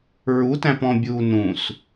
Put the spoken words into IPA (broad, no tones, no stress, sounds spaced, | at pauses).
ɹ u t æ̃ p ɔ̃ bʲ uː n ũ s